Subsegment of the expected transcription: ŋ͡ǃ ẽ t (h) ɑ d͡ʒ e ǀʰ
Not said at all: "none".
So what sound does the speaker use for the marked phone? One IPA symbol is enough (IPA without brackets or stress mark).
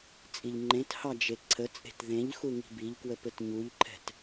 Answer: h